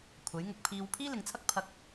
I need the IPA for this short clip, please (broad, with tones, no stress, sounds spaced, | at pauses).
kʷʰ ɐ˨˥ j ŋ ʊ˧ k̚ pʰ iː˧ w pʰ iː˥ l ɪ˨ ŋ t͡sʰ ɐ˥ k̚ pʰ ɐ˧ k̚